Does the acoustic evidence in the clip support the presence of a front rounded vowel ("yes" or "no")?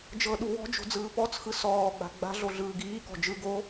no